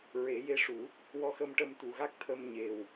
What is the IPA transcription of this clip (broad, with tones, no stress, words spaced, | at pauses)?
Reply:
ɹe˨˩˦je˧˥ʂu˨˩˦ | wɔ˧xə˧mʈə˧m t̪u˨˩ɣa˦˥k̚ t̪ʰə˧mɲe˨˩w